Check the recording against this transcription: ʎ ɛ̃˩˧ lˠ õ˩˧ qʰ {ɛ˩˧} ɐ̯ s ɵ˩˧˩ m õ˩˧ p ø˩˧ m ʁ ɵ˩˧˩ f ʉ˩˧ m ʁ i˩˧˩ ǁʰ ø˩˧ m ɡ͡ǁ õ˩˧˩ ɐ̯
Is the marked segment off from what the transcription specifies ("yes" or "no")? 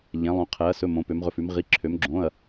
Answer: no